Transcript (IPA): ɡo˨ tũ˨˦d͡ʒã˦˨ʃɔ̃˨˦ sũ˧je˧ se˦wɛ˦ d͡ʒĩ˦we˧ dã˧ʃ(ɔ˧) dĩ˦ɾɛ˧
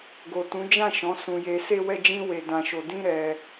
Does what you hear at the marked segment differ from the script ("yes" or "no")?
yes